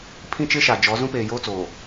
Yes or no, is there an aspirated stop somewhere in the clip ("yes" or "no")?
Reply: yes